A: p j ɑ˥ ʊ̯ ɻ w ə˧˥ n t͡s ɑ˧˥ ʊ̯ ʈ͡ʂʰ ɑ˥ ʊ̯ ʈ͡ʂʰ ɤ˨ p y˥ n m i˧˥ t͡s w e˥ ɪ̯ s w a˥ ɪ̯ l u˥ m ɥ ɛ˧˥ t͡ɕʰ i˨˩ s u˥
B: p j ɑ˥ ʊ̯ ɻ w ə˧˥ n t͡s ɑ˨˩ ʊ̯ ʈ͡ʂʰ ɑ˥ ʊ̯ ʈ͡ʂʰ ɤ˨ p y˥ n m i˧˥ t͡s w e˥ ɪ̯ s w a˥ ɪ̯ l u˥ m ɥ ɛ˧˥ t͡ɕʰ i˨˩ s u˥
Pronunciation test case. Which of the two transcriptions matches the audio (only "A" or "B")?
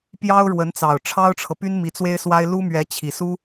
B